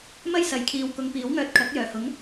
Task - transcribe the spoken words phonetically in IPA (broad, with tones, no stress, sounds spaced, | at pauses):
m ɐ˥ j s ɐ˨˥ j kʰ iː˨ w k ʊ˨˧ ŋ p iː˨˥ w ŋ œː˧ t̚ kʰ ɐ˨˥ k̚ j œː˨˩ h ʊ˨˥ ŋ